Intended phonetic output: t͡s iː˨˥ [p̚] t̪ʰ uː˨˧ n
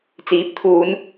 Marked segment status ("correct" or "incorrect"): correct